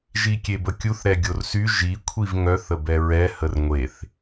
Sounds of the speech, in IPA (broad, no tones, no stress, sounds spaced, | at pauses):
ʒ i kʲ e b ə kʲ u θ ɾ ɛ ɡʲ o r s y ʒ i kʷʰ i v ŋ œ θ ə b ɛ ɹ ɛ h ə r ŋʷ e θ